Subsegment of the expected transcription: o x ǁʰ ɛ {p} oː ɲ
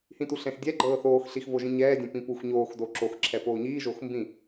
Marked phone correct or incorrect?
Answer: correct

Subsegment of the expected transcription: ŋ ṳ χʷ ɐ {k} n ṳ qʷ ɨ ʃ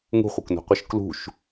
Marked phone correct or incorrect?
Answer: correct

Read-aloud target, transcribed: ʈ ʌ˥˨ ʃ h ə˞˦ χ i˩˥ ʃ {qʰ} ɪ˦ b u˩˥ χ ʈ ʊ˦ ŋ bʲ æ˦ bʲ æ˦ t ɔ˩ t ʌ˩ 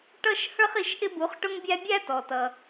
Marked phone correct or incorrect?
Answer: incorrect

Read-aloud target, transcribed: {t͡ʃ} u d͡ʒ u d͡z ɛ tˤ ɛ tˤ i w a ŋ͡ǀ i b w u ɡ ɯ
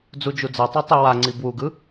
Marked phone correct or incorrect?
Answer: incorrect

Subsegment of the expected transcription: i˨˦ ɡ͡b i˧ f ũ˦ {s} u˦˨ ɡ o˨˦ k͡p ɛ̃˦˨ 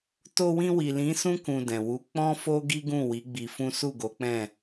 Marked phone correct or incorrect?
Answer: correct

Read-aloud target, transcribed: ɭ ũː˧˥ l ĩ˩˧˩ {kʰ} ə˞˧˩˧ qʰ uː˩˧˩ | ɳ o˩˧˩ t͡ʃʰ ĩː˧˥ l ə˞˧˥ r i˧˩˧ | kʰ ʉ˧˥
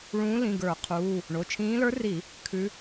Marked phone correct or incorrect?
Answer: incorrect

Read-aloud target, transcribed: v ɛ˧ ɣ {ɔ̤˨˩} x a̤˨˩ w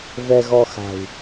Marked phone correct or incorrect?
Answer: incorrect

